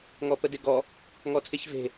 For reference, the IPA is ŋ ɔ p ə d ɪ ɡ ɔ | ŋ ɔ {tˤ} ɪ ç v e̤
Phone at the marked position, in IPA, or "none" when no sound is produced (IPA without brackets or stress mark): tʰ